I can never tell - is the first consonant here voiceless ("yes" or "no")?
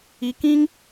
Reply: yes